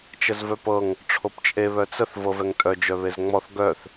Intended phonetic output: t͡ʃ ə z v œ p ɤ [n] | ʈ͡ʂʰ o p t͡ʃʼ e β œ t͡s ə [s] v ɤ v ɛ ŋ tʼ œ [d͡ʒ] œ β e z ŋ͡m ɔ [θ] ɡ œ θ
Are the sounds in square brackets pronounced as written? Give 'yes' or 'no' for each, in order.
no, no, yes, yes

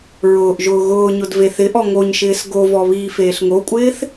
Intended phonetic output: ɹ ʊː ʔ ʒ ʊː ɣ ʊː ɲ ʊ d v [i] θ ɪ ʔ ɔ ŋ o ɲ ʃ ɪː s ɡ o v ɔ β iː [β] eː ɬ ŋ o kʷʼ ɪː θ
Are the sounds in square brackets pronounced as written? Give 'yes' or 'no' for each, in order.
no, no

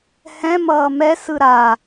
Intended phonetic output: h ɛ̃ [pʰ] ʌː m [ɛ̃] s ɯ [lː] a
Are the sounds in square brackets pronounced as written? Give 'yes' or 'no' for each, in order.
no, no, no

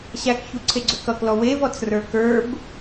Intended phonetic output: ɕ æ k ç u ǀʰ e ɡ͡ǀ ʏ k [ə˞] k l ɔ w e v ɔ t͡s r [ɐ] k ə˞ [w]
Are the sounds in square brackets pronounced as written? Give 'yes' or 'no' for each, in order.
no, no, no

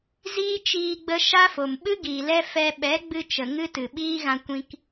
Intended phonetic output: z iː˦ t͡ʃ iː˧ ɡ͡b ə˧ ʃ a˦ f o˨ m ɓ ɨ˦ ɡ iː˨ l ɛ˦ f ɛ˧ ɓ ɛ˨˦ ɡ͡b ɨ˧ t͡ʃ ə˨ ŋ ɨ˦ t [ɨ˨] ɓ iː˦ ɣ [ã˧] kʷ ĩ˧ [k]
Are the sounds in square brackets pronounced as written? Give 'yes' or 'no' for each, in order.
yes, yes, yes

